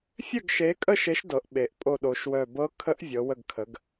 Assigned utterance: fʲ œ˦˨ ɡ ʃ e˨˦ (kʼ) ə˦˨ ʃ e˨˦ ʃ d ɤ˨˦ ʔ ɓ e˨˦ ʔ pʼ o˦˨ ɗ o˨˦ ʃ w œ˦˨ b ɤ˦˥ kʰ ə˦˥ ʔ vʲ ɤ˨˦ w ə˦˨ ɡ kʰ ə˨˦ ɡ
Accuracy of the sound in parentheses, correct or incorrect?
correct